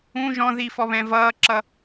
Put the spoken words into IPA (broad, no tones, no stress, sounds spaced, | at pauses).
ũ ʒ ɔ̃ ð i f ɔ β ɛ̃ v ʌː ǁ ʌ